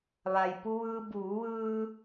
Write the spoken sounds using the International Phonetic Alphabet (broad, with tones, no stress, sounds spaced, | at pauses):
ʋ a˩ j p u˧ ʋ ɯː˧ b uː˩˧ ʋ ɯː˧